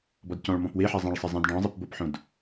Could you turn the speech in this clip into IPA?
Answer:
b ɔ d c ɔ̃ ɭ m ɔ̃ p w e ħ ɛ zˤ ẽ ɭ sˤ ɪ zˤ ĩ d ɖ ɔ̃ zˤ i p b o p ħ õ d

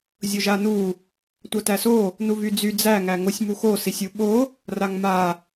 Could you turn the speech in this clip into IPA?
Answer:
zʲ o ʒ a n u | tʷ a t æ s o | n u v y d͡z y d͡z æ ŋ æ ŋ o sʲ m u x o s i sʲ u ɓ o | r a ŋ m a

